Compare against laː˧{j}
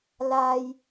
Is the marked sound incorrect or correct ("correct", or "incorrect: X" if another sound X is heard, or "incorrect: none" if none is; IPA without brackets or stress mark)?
correct